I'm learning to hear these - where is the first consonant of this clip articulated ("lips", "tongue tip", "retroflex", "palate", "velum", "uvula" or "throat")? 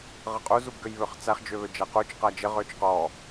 uvula